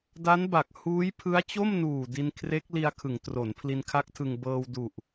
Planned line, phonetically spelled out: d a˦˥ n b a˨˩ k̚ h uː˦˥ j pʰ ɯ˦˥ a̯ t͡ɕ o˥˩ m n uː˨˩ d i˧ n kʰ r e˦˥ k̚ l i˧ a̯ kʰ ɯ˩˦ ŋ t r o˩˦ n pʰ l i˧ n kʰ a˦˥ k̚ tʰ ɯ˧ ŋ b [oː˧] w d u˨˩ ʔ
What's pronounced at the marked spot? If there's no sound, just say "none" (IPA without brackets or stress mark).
ɤː˧